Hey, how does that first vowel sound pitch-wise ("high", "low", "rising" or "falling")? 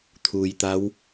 low